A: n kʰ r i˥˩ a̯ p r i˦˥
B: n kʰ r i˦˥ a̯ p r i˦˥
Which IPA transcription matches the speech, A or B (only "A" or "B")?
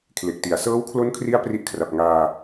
B